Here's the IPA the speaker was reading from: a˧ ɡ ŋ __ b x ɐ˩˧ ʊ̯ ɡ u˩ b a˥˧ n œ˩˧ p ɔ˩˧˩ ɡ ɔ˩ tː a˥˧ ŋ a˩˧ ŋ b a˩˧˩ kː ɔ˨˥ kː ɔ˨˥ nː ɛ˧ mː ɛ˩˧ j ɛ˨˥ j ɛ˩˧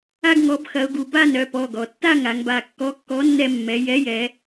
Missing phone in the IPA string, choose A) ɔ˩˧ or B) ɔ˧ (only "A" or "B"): A